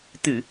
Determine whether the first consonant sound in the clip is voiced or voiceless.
voiceless